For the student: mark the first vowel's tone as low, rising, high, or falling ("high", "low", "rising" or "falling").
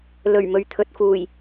low